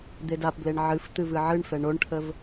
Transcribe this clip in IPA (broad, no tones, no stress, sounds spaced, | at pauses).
d̪ e d a p b l e ɳ ʕ ɨ f t̪ ɨ v ɨ ʕ ɨ ɳ f ɛ ɳ o ɳ ʈʰ ə v